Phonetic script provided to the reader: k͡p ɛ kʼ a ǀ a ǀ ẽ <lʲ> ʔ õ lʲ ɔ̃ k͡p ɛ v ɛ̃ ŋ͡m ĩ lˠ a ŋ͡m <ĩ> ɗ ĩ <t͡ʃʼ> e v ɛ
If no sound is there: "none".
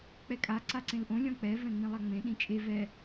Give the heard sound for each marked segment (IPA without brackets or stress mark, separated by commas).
l, ẽ, t͡ʃʼ